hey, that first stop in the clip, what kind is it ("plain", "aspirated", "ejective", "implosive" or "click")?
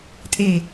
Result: ejective